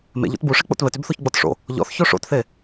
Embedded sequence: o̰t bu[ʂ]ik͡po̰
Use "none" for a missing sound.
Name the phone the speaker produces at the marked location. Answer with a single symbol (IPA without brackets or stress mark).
ʂ